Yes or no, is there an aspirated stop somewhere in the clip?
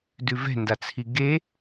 yes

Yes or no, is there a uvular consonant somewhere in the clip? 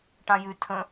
no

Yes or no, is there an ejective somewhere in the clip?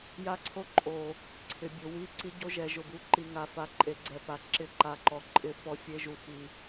yes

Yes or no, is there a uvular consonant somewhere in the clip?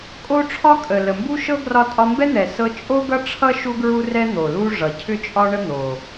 no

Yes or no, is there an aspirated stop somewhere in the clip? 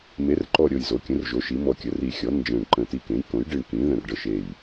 no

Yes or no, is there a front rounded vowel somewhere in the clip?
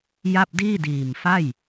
no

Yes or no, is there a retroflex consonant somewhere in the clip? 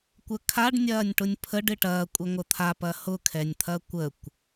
yes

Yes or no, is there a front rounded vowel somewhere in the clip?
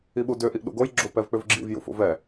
yes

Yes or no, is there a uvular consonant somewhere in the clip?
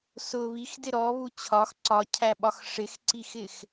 no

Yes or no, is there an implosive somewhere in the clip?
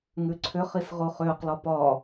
no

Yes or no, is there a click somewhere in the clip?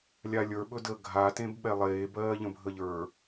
no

